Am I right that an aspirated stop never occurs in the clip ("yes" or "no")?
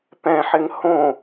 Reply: yes